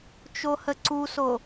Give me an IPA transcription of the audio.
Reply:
t͡ʃ o h ə ǀ u s o

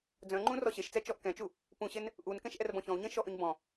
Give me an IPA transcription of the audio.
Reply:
d͡z œ̃ ŋ͡ǃ ũ r ɔ ɕ e ʃ t͡s ɛ t͡ʃ ɔ ʔ k ɛ̃ t͡ʃ u | p ũ ɕ e n | ʔ u n k ɛ̃ ʃ ʔ ɛ r b ɔ̃ ç ɔ̃ u̯ ɲ ẽ ʃ ɔ ʔ ø ɲ b ɔ̃

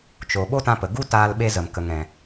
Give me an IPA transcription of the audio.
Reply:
t͡ʃ o˨ ɓ o˦ t ã˧ p ə˨ ɡ u˦ t aː˧ l ɓ e˧ z ə˨ m k ə˧ ŋ ɛ̃˧

